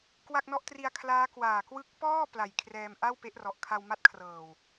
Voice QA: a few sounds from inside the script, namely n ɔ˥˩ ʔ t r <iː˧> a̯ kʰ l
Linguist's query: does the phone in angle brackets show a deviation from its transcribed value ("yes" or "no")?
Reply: yes